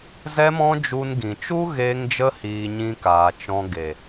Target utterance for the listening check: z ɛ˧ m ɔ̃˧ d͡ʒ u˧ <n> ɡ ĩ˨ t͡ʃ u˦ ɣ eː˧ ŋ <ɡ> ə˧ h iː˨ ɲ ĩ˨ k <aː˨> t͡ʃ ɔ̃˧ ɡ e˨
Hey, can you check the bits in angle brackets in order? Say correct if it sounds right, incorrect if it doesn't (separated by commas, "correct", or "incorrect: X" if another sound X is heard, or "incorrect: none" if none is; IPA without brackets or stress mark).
correct, incorrect: d͡ʒ, correct